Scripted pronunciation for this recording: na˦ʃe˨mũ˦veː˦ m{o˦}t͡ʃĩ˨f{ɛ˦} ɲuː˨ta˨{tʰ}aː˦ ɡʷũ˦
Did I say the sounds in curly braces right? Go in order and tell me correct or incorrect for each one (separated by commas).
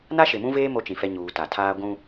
correct, correct, correct